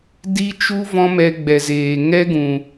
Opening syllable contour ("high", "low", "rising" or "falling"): high